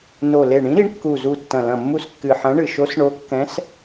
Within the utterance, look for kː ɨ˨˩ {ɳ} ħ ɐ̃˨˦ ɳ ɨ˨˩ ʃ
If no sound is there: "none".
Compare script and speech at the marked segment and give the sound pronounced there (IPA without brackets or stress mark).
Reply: none